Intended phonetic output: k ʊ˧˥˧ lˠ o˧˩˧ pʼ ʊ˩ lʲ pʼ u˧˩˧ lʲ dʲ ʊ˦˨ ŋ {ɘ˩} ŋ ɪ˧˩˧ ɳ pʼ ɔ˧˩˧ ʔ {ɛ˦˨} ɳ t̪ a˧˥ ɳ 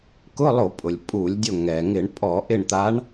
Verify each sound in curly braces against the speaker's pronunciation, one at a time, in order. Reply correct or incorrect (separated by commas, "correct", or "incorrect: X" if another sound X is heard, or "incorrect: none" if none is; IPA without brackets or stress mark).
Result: incorrect: ɛ˩, incorrect: ɪ˦˨